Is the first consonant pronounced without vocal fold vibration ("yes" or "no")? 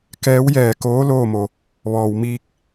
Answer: yes